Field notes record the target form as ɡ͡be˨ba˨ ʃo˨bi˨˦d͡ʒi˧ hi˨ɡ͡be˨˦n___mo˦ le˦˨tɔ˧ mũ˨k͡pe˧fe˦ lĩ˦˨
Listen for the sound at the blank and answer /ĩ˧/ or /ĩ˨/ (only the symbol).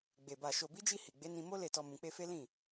ĩ˧